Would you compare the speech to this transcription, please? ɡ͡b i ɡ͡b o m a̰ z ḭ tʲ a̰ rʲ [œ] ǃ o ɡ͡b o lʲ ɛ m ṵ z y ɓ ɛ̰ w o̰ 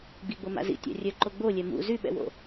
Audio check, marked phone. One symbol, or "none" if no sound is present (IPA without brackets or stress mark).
œ